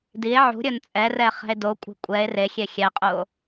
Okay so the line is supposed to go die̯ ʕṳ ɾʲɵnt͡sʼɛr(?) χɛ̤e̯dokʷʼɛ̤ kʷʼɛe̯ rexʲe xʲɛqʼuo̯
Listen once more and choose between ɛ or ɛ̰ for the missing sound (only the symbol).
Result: ɛ